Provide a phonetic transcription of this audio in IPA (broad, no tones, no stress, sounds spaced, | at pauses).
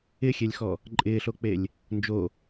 ɪ xʲ e lʲ x ɔ | ǃʼ ɪː ɬ o k͡p e lʲ | n d͡ʒ o